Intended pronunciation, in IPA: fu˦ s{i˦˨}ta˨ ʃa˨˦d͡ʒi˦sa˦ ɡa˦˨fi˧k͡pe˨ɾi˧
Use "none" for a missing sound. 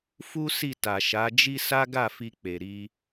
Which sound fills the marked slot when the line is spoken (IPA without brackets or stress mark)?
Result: i˦˨